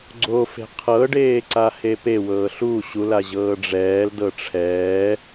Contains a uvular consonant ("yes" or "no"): yes